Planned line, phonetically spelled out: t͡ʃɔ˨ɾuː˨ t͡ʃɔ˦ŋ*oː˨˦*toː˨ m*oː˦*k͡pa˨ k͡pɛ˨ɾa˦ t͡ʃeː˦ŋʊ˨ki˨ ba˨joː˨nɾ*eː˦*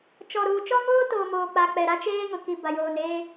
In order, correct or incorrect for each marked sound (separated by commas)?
incorrect, incorrect, correct